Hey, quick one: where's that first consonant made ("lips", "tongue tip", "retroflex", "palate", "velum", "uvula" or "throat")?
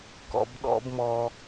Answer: velum